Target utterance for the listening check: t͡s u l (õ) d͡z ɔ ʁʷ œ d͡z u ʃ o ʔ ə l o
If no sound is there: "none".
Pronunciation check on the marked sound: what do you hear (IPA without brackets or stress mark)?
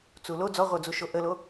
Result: o